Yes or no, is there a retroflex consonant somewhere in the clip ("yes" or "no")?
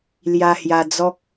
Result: no